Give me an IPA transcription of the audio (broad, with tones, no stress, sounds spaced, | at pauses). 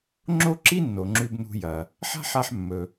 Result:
ŋ͡ǁ o˥ ǁ i˥ nː o˩ ŋ͡ǁ ʉ˧ b n ṳ˧ j ɐ˩ | ħ a̤˥ ħ a˧ ħ mː ɵ˩